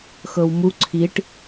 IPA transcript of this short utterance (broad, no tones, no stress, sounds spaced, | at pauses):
x ɤ w m u ǀʰ i ʈ